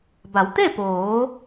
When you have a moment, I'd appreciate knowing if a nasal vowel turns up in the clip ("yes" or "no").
no